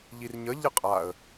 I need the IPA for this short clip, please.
ʎ i r ɲ ə ʎ ə qʼ a ə̯

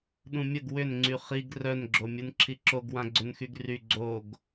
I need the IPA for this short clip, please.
ɗ ũ mʲ ə ɡ w ʏ n ŋ͡ǀ y χ i ɡ r œ n ɡ͡ǁ o mʲ u n ǁʰ i ǁ o ɡ w ã ɡ͡ǀ ʏ n x y ɡ r y ɡ͡ǀ o ɡ

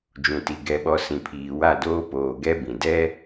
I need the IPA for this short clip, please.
d͡ʒ ũ˨ t i˨ ɡ ɛ˨ ɓ ɔ˨ s ĩ˨ pʰ iː˨ w a˦˨ d oː˦ p oː˨ ɡ ɛ˦ b ĩ˨ d ɛ˦

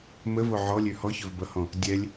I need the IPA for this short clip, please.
m ə v o ʕ ɔ lʲ ø h ɔ ç ɵ v b ʌ h ɔ̃ | dʲ ɛ lʲ

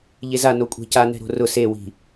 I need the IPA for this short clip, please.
ʎ e z a n o kʷʼ ɛ̤ c a n ɛ̤ ɾ o̤ r ʊ s e w i̤

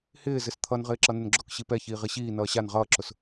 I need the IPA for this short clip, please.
h ɪː z ɪ s t̪ʰ ʌ n ʁ ɪː ǁ ʌ n ɪ n ɡ͡ǁ ʊ k ɕ i p ɛ ç iː ʁ i ɕ iː n ʌː ɕ a n ʁ ʌː ǁ ʊ s

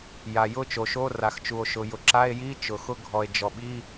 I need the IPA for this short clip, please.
j a˩ j ʊ˧˥˧ t͡ʃ o˩ ʃ o˧˥˧ r a˩ x t͡ʃ u˩ o̯ ʃ ʊ˩ j ʊ˩ ǁ a˧˥˧ e̯ j i˧˥˧ t͡ʃ ʊ˩ x ʊ˧˥˧ ɡʱ ɔ˩ e̯ d͡ʒ ɔ˩ ɓ i˧˥˧

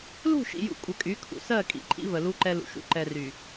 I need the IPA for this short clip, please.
l ṳ˦˨ ʃ ḭ˨ j ṵ˨ kʷʼ ə˨ kʼ y˨˦ kʰ ṵ˨ s ɜ˦˨ kʼ ḭ˨ ǃʼ ḭ˦ v ə˨ l u˦ ǃ ɛ˦ l ṵ˨ ʃ ṵ˦ ǃ ɛ˨ r y˨

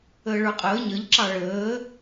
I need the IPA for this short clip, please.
əː ɭ ə˞ qʼ əː ɲ ʌ ʎ ǁ ɑ ɭ əː

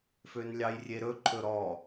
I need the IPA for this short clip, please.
f ø n lʲ ɑ j rʲ e ɾ ɵ ǃʰ ɵ ɾ ɔ

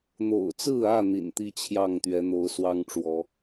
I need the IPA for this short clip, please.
n̪ o̰˨˩ ʊ̯ t͡s ɹ̩˥˨ ä˥˨ n̪ ḭ˨˩ n t̪ i˦ t͡ɕʰ j ɑ˥˨ ŋ t̪ ɥ ɛ˨˦ n̪ o˨˦ ʊ̯ s w ɑ˦ ŋ ʈ͡ʂ w ɔ˨˦

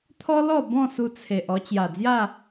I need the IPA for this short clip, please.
t̪ʰ ɔ˦ l ɔ˥˧ b ɔ̃˥˧ s u˧ t͡sʰ e˨ ʔ ɔ˧ t͡ɕ j a˨˩ d͡z j a˥˧

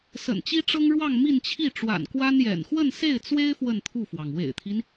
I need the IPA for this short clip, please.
s ə̰˨˩ n t͡ɕ i˥ ʈ͡ʂ ɤ˥ ŋ ɻ w ɑ˥˧ ŋ m i˥˧ n t͡ɕʰ i˥˩ ʈ͡ʂ w a̰˨˩ n k w a˥ n j ɛ̰˨˩ n x w ə˥˧ n s e˥˩ ɪ̯ t͡s w e˥ ɪ̯ f w ə˥˧ n t̪ʰ u˥˩ f w ɑ˩ ŋ w ḛ˨˩ ɪ̯ t̪ʰ i˦ n

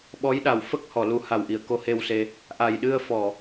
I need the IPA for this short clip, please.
ɓ ɔ˧˥ j ɗ a˨˩ w f ə˦˥ k̚ h ɔ˨˩˨ l u˨˩˦ h a˨˩ w ʔ i˨˩˨ ə̯ k o˧˥ h e˧ w s e˧ | ʔ a˨˩ j ɗ ɨ˧ ə̯ f ɔ˨˩˨

